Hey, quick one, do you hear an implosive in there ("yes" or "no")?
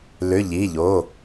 no